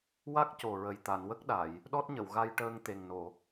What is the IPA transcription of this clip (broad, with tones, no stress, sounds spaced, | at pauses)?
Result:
w a˦˥ k̚ c o˨˩ ɹ ə˨˩ j t̪ a˨˩˨ n w ə˦˥ k̚ ɗ a˨˩˨ j | ɗ ɔ˦˥ t̚ ɲ ə˨˩˨ w ɣ a˧ j ʈ əː˧ ŋ t̪ e˨˩ ŋ n o˨˩˨